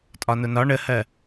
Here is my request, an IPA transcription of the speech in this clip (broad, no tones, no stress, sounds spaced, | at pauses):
tʼ ɒ n ʊ n ɒ ɳ ə h ɜ